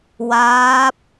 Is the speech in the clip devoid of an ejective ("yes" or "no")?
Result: yes